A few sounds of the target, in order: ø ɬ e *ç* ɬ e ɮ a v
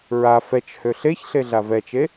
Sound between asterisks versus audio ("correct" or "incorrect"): correct